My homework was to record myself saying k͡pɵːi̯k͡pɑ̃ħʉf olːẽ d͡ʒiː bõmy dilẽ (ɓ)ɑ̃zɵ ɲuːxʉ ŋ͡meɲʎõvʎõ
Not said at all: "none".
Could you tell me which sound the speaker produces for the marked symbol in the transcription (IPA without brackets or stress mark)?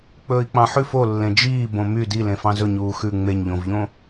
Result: f